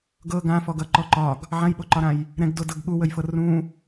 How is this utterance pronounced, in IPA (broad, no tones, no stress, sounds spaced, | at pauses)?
ɡ ɤ ɡ ã f ɔ ɡ ʌ ǃ ɔ ǃ ɒ ɡ | ʕ ã j ɓ o ǃ ɒ ɾ ã j | ɾ ɛ̃ ɡ d o d ɤ ɡ ɠ u w ə j f ɤ r ũ